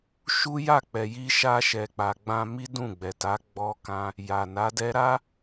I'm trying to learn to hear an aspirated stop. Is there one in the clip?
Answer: no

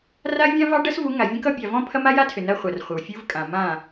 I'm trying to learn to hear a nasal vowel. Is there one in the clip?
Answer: yes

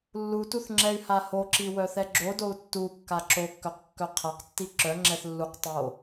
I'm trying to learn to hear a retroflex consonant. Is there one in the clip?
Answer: no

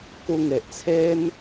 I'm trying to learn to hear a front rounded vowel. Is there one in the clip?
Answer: no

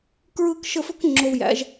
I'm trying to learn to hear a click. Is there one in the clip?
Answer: yes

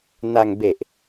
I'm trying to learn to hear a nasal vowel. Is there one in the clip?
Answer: no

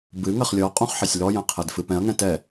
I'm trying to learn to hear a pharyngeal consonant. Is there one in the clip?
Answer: yes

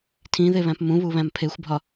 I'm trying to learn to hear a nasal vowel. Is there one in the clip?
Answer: yes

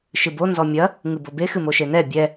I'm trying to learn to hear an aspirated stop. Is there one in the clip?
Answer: no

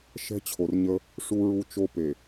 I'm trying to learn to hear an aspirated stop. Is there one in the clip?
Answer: yes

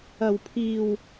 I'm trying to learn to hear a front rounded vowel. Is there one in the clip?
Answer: no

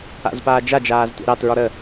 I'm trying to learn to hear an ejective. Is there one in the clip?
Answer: no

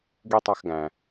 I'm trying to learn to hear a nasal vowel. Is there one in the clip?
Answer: yes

